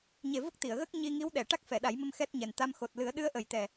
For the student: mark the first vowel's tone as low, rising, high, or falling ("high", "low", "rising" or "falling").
low